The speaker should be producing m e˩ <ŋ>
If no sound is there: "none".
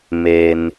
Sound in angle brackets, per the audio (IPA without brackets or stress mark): n